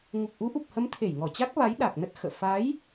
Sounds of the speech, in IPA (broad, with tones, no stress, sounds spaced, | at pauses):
ŋ u˨˩ k̚ ʔ u˨˦ ʔ u˨˩ p̚ h ə˨˦ m t̪ʰ e˧˩ j ŋ ɔ˧˩ t͡ɕ a˦˥ k̚ v a˨˦ j ɗ a˨˩ k̚ n ə˦˥ t̚ x ə̰ː˧˨ f a˨˦ j